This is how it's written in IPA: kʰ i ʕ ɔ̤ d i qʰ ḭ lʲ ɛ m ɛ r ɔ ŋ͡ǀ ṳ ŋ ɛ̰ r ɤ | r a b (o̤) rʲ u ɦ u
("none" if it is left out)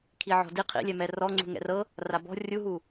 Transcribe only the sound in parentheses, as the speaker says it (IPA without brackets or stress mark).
ɔ̤